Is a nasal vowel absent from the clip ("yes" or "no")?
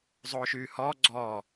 yes